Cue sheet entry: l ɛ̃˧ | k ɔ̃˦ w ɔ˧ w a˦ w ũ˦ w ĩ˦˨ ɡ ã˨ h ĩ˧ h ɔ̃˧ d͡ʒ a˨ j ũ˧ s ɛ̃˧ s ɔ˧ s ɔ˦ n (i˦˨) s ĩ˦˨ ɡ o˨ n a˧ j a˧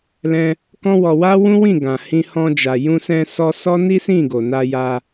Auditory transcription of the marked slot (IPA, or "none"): i˦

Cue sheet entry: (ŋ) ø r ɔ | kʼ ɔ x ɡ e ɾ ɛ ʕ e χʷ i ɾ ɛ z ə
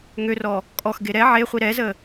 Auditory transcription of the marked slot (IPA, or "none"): ŋ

